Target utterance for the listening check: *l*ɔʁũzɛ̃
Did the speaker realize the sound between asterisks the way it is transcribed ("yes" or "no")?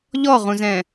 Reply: no